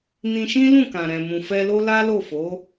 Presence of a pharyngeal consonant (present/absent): absent